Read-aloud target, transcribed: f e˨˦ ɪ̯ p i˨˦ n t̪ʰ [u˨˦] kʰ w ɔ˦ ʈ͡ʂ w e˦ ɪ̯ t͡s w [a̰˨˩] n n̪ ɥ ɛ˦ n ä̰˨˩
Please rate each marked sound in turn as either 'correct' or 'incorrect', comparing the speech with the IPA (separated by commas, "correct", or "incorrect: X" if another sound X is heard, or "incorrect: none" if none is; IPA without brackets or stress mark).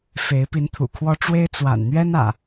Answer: incorrect: ṵ˨˩, correct